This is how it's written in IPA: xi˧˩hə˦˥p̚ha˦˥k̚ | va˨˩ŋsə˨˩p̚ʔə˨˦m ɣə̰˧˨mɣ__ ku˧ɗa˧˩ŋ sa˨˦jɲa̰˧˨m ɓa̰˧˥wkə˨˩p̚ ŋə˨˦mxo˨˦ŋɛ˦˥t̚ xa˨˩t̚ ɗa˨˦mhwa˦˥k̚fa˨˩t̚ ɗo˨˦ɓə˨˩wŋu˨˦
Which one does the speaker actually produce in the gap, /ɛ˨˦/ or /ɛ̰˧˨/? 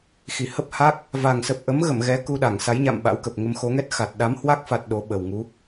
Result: ɛ˨˦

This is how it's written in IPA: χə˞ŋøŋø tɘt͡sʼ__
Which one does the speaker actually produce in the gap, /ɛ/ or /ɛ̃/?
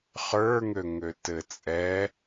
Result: ɛ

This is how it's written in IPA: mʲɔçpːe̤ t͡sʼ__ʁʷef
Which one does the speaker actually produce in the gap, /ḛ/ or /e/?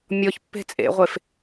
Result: ḛ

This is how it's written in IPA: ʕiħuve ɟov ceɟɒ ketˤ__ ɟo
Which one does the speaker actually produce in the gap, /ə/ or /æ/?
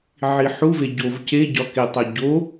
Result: æ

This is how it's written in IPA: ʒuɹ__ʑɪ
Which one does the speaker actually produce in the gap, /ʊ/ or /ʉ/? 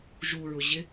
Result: ʊ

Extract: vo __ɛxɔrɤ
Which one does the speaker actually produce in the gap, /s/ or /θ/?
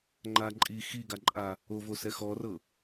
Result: s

